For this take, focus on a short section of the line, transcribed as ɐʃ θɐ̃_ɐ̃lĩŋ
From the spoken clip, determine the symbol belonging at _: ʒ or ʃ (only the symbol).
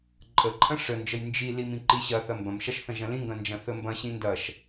ʒ